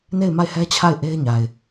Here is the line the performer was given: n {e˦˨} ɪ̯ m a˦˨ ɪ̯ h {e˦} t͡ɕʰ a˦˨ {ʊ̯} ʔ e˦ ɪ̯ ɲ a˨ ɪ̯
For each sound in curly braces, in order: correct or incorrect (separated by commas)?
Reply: correct, incorrect, incorrect